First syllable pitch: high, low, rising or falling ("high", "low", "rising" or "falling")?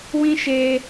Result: high